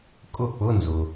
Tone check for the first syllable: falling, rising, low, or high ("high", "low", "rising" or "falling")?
falling